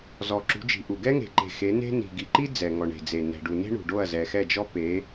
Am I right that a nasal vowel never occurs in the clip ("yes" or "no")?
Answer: yes